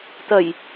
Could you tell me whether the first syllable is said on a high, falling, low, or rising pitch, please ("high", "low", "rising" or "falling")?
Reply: low